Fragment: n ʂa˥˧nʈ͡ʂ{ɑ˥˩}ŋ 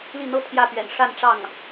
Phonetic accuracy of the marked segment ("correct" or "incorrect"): correct